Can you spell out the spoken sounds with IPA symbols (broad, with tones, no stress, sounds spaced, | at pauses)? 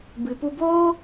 b ɨ˨ p u˧ b oː˦